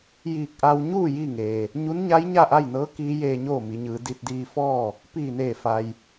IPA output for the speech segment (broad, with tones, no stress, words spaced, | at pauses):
jiː˧˩k̚ʔa˧w ɲuː˥˨ jiː˥˨ŋeː˩ | ɲu˧˥nɲa˧˥j ɲa˥˨ʔa˥˨jnɤː˧˥ kiː˧˥jeː˧ɲoː˥˨ mi˩˧ɲɯː˩˧ di˧t̚diː˧fɔː˥˨ | piː˧˩neː˧˩fa˩j